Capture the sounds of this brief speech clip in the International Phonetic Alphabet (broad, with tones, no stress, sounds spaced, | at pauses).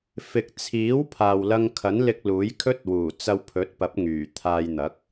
f ɪ˨ k̚ t͡sʰ iː˨˥ w pʰ aː˨ w l ɐ˧ ŋ kʰ ɐ˨˥ n l ɪ˧ k̚ l uː˨˥ j kʰ ɵ˥ t̚ w uː˨˩ t͡s ɐ˧ w pʰ ɵ˨˥ t̚ p ɐ˨˥ p̚ ŋ yː˨˩ t̪ʰ aː˧ j n̪ ɐ˨˥ k̚